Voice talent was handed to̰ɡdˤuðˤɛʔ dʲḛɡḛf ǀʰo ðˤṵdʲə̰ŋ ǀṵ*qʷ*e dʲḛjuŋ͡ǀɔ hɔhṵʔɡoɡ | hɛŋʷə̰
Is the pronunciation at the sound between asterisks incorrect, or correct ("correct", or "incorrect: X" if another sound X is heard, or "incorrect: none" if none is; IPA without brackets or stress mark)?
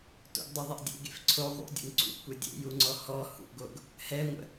incorrect: kʷ